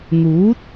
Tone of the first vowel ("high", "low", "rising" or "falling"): rising